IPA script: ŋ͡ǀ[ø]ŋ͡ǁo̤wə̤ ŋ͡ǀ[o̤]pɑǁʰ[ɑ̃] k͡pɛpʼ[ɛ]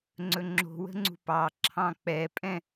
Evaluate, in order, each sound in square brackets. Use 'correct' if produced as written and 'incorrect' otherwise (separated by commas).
incorrect, incorrect, correct, incorrect